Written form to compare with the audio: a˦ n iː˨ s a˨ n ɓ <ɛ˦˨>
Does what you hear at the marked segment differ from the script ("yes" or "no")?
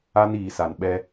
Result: yes